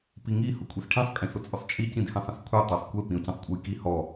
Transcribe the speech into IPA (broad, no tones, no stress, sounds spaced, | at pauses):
p i ŋ i h ʊ kʷʼ i s ʈʰ ĩ sˤ kʼ ĩ s ʊ t͡sʼ ʊ sˤ t͡ʃʼ i c ĩ d h ĩ sˤ ə̃ s kʷʰ e tˤ e sˤ kʷ e p ĩ o̯ c ə̃ sˤ kʷʼ ə j k i h ɔ